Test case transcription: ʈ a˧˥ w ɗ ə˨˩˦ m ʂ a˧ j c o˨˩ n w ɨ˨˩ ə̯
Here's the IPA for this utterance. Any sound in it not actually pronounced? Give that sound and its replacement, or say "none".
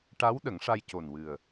m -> ŋ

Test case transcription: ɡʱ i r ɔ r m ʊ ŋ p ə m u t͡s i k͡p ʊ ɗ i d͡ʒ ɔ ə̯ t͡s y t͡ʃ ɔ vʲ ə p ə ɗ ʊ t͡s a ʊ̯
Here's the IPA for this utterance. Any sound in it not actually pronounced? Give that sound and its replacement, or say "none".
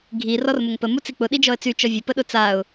none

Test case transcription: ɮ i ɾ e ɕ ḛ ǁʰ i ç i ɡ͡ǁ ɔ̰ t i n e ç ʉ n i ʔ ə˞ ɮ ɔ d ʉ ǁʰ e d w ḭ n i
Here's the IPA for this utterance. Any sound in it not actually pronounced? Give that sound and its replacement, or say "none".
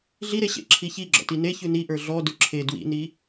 none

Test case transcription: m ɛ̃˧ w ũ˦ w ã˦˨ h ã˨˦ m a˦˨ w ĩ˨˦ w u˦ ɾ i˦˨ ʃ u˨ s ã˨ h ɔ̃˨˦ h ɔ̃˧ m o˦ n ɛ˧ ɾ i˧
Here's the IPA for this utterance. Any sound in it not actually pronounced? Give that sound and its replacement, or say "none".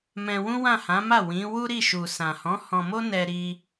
none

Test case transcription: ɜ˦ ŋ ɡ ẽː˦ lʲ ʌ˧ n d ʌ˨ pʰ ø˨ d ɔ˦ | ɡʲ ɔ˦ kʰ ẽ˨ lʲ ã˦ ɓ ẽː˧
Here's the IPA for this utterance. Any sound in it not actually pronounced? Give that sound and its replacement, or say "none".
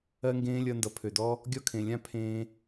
ɓ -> pʰ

